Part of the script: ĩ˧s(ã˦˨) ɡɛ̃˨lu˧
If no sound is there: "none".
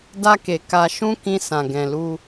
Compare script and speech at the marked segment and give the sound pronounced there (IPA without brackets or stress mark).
ã˨